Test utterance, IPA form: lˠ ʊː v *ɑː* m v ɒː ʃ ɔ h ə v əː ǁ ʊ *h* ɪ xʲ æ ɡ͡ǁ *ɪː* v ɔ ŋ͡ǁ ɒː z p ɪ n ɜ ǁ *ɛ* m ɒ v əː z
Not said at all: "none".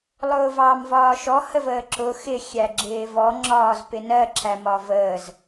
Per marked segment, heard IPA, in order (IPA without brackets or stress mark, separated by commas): ɑː, x, ɪː, æ